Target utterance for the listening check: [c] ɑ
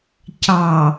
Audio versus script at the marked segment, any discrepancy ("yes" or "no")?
no